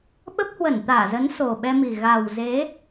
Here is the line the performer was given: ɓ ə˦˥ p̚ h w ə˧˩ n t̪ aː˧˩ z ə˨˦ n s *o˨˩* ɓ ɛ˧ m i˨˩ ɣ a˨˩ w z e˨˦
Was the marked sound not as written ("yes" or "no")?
no